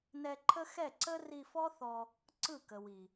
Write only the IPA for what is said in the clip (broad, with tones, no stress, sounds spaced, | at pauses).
n ɛ˧ ǃʰ ə˦ x ɛ˦˨ ǀ ə˦ r i˧ f ɔ˦ θ ɔ˧ | ǀ ɯ˦˨ k ə˨ w i˨